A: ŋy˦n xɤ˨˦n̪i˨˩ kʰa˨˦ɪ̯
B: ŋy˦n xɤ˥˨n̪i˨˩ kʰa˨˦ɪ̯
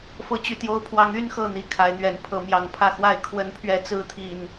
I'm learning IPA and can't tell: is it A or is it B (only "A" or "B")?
B